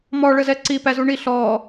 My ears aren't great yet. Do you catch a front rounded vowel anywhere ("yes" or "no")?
no